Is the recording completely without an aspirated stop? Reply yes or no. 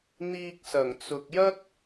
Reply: yes